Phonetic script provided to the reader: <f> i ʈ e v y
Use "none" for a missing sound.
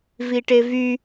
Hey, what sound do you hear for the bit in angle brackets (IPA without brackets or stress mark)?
v